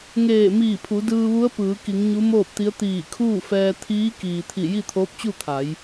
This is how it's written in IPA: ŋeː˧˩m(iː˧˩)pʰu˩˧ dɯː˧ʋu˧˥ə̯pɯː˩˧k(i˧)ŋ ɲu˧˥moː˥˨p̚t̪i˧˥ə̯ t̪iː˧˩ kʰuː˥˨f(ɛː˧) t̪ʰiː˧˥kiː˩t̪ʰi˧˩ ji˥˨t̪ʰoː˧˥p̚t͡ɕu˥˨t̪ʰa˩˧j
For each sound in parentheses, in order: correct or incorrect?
correct, incorrect, correct

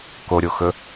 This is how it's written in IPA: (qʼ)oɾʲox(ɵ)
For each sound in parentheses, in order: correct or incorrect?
incorrect, correct

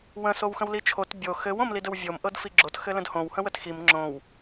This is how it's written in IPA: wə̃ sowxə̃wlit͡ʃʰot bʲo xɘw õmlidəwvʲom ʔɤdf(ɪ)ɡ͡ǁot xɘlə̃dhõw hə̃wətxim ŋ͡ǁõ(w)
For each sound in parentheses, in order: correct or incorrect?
incorrect, correct

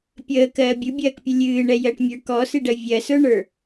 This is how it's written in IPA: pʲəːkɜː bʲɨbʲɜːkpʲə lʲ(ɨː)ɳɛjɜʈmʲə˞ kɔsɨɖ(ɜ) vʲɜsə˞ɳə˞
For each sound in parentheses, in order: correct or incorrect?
correct, correct

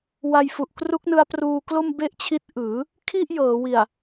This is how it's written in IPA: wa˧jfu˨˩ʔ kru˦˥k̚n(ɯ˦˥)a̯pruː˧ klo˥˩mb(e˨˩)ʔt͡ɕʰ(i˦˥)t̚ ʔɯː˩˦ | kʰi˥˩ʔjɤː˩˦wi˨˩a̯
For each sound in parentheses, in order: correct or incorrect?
correct, incorrect, correct

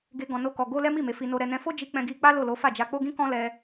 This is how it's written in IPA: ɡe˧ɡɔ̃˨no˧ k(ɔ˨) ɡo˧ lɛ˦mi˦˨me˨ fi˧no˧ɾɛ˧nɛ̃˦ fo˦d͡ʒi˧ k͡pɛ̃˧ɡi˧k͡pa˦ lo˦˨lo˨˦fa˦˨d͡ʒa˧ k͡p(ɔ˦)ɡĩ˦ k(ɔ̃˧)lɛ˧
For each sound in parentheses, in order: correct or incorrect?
correct, incorrect, incorrect

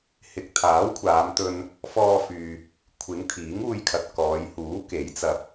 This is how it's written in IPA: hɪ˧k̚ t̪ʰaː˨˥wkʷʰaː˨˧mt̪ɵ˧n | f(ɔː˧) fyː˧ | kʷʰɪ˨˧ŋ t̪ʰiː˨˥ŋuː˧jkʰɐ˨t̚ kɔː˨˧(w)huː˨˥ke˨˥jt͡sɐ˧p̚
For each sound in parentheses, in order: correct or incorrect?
correct, incorrect

